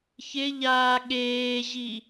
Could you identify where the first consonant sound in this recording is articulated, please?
palatal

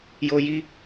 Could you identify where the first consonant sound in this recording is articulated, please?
palatal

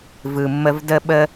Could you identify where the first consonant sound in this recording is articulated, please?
labial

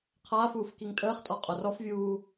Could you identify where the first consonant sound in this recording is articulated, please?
uvular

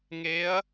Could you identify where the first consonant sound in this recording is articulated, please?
velar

